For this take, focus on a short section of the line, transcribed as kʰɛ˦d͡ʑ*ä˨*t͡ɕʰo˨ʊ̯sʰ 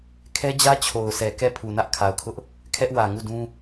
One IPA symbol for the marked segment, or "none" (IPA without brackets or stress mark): ä˦